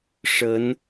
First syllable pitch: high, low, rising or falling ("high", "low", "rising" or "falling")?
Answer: rising